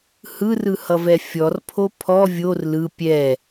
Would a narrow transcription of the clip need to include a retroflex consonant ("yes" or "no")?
no